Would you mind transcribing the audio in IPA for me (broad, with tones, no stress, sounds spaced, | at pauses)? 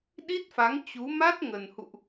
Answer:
ɗ i˦˥ t̚ f a˨˦ ŋ t͡ɕ u˨˦ m a˦˥ t̚ ŋ ə˨˩ n h ṵ˧˨ ʔ